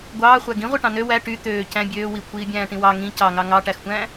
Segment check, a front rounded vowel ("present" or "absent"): present